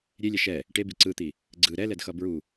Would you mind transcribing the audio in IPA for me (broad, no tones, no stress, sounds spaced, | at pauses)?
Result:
ɾʲ e lʲ ɛ ʃ ɛ | ʈ e b i ǀ ɯ t̪ i | ɡ͡ǀ ɯ ɾ ɛ l ɛ d x ʌ b ɹ u